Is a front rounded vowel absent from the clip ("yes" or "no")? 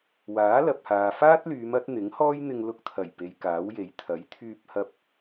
no